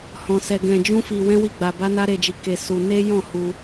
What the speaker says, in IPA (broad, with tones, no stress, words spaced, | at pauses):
hɔ̃˧ sɛ˧ ɡɛ̃˧d͡ʒũ˦fi˧ wɛ̃˦wi˦˨ɡ͡ba˧ba˦ na˦ɾe˧d͡ʒi˧ ke˧ su˧ ne˦jɔ̃˦˨ hu˧